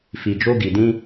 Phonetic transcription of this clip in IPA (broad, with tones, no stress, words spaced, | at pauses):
fi˨d͡ʒo˧ɡi˨dĩ˧